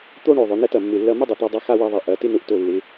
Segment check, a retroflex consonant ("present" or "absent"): present